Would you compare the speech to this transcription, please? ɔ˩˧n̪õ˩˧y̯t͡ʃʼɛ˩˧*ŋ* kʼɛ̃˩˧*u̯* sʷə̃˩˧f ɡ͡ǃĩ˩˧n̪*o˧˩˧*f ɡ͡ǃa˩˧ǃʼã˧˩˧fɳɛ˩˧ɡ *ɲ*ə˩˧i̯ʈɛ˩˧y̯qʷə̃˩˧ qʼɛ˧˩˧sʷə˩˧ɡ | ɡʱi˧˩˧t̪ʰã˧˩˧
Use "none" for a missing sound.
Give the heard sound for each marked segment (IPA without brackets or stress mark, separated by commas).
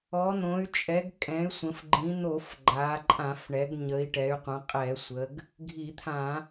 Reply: ɡ, y̯, o˧˩˧, ɲ